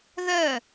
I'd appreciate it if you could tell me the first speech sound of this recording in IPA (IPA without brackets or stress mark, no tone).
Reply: ð